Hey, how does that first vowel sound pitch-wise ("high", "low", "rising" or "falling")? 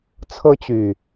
high